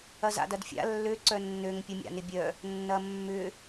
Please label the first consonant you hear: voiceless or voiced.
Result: voiced